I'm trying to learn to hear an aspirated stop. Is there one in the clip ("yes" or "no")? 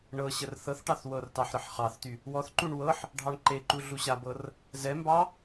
no